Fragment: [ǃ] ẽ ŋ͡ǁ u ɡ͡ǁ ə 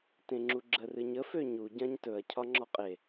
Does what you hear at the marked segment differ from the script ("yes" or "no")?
yes